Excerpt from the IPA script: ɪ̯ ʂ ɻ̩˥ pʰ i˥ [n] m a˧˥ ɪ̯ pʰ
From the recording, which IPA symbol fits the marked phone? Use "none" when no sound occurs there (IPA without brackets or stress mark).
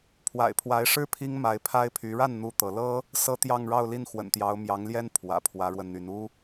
ŋ